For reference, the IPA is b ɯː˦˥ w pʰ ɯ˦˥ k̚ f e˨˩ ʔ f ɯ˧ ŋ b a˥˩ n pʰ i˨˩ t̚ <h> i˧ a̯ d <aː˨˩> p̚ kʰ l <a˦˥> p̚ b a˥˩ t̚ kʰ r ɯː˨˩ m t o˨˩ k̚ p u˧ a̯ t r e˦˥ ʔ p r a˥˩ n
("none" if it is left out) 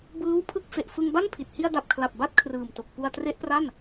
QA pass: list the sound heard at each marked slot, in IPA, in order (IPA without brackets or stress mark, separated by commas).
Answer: h, a˨˩, a˨˩